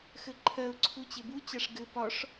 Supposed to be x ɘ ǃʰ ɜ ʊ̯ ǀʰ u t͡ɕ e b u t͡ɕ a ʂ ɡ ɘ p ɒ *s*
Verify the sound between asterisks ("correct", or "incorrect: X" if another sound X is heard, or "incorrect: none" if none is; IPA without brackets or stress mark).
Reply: incorrect: ʂ